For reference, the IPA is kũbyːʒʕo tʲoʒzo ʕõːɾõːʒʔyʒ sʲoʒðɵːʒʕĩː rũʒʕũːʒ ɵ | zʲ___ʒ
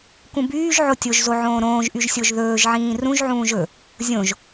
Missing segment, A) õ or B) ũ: A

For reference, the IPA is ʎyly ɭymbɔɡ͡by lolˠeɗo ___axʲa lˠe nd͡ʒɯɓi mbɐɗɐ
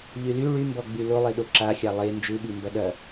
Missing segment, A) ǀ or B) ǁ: B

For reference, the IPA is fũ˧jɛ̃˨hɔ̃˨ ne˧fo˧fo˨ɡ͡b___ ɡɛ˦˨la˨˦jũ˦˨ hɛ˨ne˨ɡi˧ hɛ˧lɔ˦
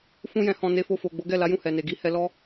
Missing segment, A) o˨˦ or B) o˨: A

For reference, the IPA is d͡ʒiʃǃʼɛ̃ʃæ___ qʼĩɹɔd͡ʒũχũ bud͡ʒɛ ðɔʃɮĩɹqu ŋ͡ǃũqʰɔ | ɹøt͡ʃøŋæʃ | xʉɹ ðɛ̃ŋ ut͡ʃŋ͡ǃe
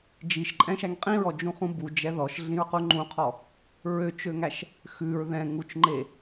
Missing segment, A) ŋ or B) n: A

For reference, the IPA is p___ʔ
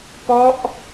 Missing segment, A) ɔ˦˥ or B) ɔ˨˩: A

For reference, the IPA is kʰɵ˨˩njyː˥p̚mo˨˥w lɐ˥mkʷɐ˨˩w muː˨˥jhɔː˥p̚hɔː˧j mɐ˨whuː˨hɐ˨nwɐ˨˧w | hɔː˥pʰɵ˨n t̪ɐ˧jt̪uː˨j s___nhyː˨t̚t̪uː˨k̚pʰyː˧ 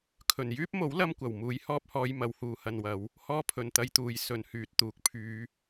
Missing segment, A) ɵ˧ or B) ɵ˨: B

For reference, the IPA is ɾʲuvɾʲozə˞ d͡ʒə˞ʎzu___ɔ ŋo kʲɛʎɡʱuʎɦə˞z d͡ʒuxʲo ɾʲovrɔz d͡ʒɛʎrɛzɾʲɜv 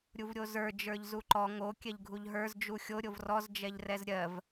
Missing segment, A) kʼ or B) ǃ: B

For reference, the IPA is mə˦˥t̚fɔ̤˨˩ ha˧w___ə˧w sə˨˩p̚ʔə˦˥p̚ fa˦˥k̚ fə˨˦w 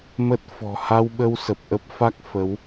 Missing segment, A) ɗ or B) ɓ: B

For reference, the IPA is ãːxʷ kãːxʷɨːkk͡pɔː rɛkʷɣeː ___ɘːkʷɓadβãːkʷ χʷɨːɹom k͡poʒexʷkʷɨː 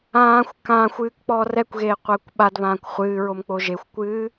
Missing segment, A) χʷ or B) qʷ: B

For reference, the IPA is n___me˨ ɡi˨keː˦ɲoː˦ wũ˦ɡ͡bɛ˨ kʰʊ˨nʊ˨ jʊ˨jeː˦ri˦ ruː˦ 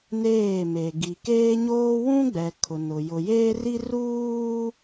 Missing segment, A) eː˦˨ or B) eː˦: A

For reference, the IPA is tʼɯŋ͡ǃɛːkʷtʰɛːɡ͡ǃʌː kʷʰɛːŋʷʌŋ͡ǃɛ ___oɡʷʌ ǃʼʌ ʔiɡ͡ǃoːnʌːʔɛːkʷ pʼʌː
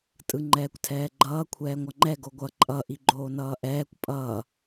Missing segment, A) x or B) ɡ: B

